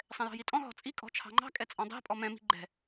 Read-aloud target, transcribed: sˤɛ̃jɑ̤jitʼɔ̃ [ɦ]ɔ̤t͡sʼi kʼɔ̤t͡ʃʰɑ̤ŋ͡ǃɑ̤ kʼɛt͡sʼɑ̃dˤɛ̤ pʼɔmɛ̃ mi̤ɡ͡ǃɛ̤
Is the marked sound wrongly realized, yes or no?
no